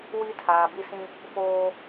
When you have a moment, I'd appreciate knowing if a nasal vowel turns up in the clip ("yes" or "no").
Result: yes